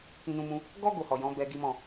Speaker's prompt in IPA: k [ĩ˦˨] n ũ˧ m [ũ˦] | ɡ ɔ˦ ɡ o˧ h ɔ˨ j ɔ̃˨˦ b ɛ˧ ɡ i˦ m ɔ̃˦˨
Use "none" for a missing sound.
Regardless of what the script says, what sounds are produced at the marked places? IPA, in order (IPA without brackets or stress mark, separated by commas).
ĩ˧, ũ˧